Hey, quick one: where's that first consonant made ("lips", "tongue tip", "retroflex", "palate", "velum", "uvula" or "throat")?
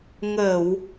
velum